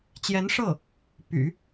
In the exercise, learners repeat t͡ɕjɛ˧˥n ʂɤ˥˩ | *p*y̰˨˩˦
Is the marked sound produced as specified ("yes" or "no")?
yes